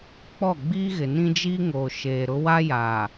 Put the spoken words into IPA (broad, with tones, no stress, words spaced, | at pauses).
k͡pɔ˦˨ɡ͡biː˦ɣɪ˨ nĩ˦d͡ʒiː˦ŋoː˨ ʃeː˨ɾʊ˦ wa˦ja˨